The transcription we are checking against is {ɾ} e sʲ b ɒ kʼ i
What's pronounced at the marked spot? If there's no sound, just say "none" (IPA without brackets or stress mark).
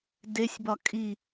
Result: d